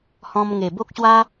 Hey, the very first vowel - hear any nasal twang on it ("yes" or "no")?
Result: yes